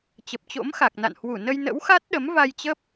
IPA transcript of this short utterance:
t͡ɕə˨˩p̚t͡ɕo̰˧˥mxa˨˩k̚na̰˧˨n hwu˧˩nə˧jnə̰˧˥wxa˦˥t̚ ɗə˨˦m va˧jt͡ɕə˦˥p̚

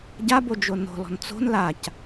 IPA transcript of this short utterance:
ɟabo d͡ʒono̤lɔ̤n t͡so̤n lac

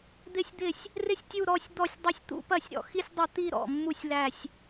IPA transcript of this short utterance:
d̪ɪ˥˩sʲd̪ɪ˥˩sʲ | rɪ˥˧sʲ tʲu˥˧ ɾɔ˥˧sʲ d̪ɔ˥˩sʲdˤɪ˥˧sʲ t̪ṵ˥˧pɐ˥˩sʲɾɔ̰˥˩ xi˥˧sʲdˤɐ˥˩t̪i˥˧ɾɔ̰˥˩ mːu˥˧sʲlæ˥˧sʲ

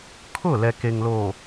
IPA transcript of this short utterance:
kʰʊ˦˨ lɛ˨ke˨ŋlo˨

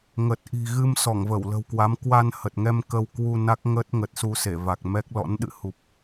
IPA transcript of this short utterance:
ŋə˨˩t̚ ʔi̤˨˩ɣɨ˧m sɔ˧˩ŋvə˧˩wlə̤˨˩wkwa˨˦m kwa˧nhə˨˩t̚ŋɛ˧m kə˧w kwu˧ na˦˥k̚ŋə˦˥t̚ ŋə˨˩t̚su˧se˧˩ va˨˩k̚mɛ˦˥k̚ lɔ̰˧˥n ɗɨ̰˧˨hu˨˩p̚

